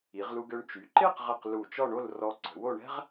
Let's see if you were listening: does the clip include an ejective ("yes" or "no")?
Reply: no